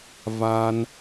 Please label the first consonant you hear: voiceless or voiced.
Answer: voiced